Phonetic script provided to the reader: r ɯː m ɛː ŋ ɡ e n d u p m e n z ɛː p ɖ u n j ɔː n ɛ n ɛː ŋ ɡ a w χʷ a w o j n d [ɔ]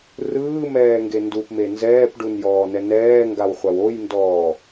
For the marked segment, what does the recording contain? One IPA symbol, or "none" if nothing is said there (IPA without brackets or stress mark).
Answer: ɔː